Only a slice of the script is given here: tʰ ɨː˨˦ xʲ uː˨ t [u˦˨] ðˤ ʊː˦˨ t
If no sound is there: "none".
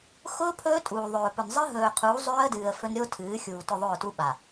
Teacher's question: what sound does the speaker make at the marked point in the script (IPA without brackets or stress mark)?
ʊ˦˨